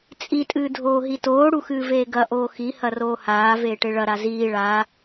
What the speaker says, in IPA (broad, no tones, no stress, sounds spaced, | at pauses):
t͡sʼ i tʼ ɨː dʱ oː ɦ i t oː ɽ u x ɨː v eː ɡ ɐ ʔ oː x i h ɐ r oː h aː v eː ʈ e ɭ ɐ ɾ a z iː ɭ aː